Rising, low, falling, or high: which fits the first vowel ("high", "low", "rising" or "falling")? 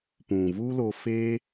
low